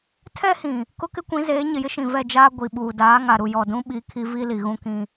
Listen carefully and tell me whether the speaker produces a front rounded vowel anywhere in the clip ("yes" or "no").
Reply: no